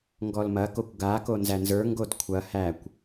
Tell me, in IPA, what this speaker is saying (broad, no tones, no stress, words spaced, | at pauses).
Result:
ŋɡɔlmɐkokʷ ɡako nzænzə˞ŋɡod kʷʰɐ hækʷ